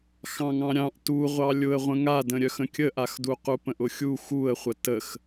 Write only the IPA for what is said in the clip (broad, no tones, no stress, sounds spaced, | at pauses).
x ɑ̃ ŋ ɑ̃ ɾʲ ɑ̃ ʔ t u ʁʷ ɑ lʲ ʊ ə̯ ʁʷ ə̃ ŋ a d ə̃ ɾʲ œ x ə̃ kʲ ə ʔ a x d u q u p ə̃ ʔ ʊ xʲ u x u ə̯ χʷ ə t ə x